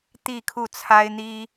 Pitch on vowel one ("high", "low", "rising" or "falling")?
falling